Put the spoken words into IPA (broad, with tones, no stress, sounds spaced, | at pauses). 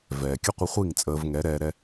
v ɛː˨ kʲ ə˦ qʷ ə˧ χʷ i˦˨ ŋ t͡sʼ əː˧ v ŋ ɛ˨˦ ɾ ɛː˧ ɾ ɛ˦